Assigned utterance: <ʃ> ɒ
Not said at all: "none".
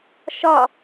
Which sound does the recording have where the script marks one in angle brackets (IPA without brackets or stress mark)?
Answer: ʃ